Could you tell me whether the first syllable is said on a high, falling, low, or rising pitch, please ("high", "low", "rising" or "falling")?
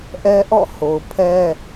high